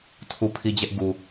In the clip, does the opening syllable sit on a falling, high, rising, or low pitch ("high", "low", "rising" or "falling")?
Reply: falling